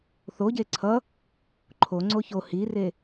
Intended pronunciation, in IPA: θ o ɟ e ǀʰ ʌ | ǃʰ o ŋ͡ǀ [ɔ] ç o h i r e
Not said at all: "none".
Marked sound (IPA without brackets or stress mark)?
o